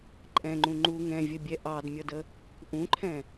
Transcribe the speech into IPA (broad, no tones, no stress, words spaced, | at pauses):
ǃʼɛ̃ŋ͡ǃũ ŋ͡ǃu ŋɛ̃vʲəbʲɛ ʔɑdmʲʌdə | ʔũǃʰɛ̃